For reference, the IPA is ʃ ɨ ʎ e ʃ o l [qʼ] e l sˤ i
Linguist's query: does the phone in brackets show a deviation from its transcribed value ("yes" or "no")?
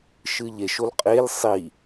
no